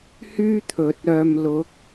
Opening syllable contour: high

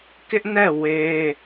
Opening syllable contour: high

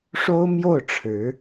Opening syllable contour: high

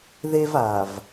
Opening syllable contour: high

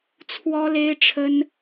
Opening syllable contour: high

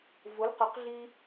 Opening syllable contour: rising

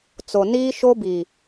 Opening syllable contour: low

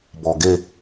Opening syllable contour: low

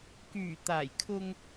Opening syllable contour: low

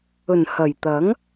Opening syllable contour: low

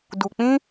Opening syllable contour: low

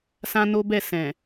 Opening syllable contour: high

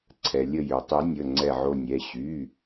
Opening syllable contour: low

